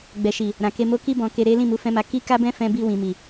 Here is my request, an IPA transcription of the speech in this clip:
ɡ͡b ɛ˨ ʃ i˨ | ɾ ã˨ k e˧ m o˦ k i˧ b ɔ̃˨ k e˨ ɾ e˨˦ l ĩ˦˨ m u˨˦ f ɛ̃˦ m a˧ k i˦ k a˦ b ɛ̃˦ f ɛ̃˧ b i˧ w ĩ˨ m i˨

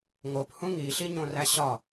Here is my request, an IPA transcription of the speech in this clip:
ŋ o p h ũ ŋ i ɬ i ɲ õ r æ ɕ ɒ

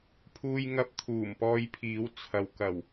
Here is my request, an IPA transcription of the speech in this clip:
pʰ uː˧ j ŋ ɐ˧ p̚ t̪ʰ uː˨˩ m p ɔː˧ j pʰ iː˨˥ w t͡sʰ ɐ˨ w k ɐ˨˩ w

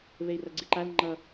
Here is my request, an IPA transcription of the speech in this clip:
β e i̯ r ʌ ɡ͡ǀ i ǃ a l ŋ͡ǃ ʌ

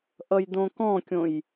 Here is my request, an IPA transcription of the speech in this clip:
ʔ ʌ j d õ k ɔ̃ kʲ õ j

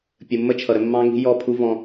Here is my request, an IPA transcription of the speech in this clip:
pʲ ə˨ mː ə˦ t͡ʃʰ ʌ˨ ɾ ə˧ mː ɑ̃˧ ŋ i̤˧ j ɔ˦˨ pʰ u˦ v ɔ̃˧

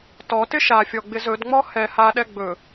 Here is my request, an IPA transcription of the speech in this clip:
t ɔ t ɪ ʃ a fʲ ɔ ɡ͡b ɪ z ɵ d ŋ͡m ɔ h ɛ h a ɗ ɛ ɡ͡b ɵ

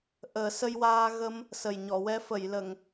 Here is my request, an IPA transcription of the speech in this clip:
ʔ əː˨˩˦ s ə˧ j w aː˧ ɣ ə˧ m | s ə˨˩ j ɲ ɔ˨˩˨ w ɛ˧ f ə˨˩˨ j l ə˨˩˨ ŋ

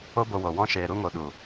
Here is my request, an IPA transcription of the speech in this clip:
o˦ b o˧ w o˨ w ɔ̃˦ ʃ eː˧ ɾ u˦ ŋ o˧ ɗ u˨

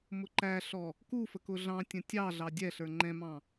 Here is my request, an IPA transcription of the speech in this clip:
m ʊ ǃ æ ɬ ɔ | k u f ə k ʊ ɮ ɑ̃ tʲ ə̃ tʲ ɑ ɮ ɑ dʲ ɛ ɬ ə˞ ŋ͡ǃ ɛ̃ m ɑ̃

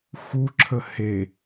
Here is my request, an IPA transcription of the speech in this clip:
x u ǁʰ ə h e

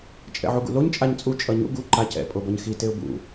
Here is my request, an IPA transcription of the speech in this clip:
t͡ʃʼ ɛ̰ ʕ u ɡ ṵ l o ɲ t͡ʃʼ a ɲ t͡sʼ u t͡ʃʼ ʌ ɲ ṵ ɡ u ǃ a c ɛ̰ pʼ o b ʌ ɲ x i t e ʊ̯ b ṵ

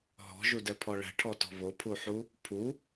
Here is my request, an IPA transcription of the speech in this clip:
ɦ ɔ̤ ʒ u d ɛ pʰ ɔ ɭ ɛ̤ ʈʰ ɔ t ɔ̤ β o pʰ u ħ u | pʰ u

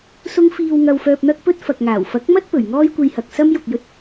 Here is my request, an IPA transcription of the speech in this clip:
s ʊ˧ ŋ f iː˨ w ŋ ɐ˨ w f œː˨ p̚ n̪ ɐ˧ k̚ p ɵ˧ t̚ f ɐ˨ k̚ ŋ aː˨˩ w f ɐ˨˥ k̚ m ɐ˥ t̚ p ɵ˨˩ ɥ ŋ ɔː˥ j kʷ e˧ j h ɐ˨ k̚ s ɐ˥ m j ʊ˨ k̚ j ɵ˧ t̚

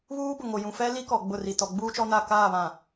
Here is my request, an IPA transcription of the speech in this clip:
β uː˦ b ʊ˨ ŋ o˨ j ũ˨ f ɛ˦ l i˦ k ɔ˨ ɡ͡b ʊ˦˨ r i˨ t ɔ˨ ɡ͡b uː˦ t͡ʃ ɔ˦ n a˦˨ k aː˦˨ β ã˨

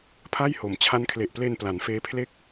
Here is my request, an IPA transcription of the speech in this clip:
pʰ a˥˩ j h o˩˦ m t͡ɕʰ a˦˥ n kʰ l e˨˩ ʔ p l e˧ n p l a˩˦ n f eː˦˥ pʰ l e˥˩ k̚

